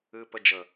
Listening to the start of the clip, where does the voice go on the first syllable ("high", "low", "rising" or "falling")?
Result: low